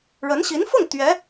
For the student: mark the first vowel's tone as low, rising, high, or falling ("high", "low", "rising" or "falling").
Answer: rising